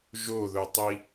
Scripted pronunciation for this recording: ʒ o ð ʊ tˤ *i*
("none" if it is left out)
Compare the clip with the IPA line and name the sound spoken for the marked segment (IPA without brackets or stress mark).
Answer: i